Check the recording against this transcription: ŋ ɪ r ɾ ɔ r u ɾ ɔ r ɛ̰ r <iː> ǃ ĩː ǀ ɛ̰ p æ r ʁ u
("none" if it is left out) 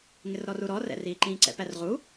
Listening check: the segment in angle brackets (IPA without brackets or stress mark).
iː